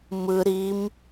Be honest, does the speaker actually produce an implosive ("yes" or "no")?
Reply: no